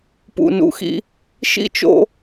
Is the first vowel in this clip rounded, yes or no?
yes